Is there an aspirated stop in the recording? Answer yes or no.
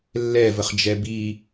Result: no